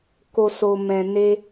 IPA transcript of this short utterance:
k o˨ s o˨ m ɛ̃˨ n e˧

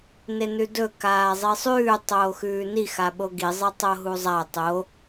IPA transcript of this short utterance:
n e n ʉ d ɵ k aː zˤ i sˤ ʉː tˤ oː x ʉː n i x a ɓ o ɡ i zˤ ɨ tˤ o ɦ u zˤ a tˤ o

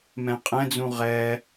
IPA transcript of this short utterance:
m ɛ̃ qʼ ɛ̃ d͡z ũ ʁ ɛ

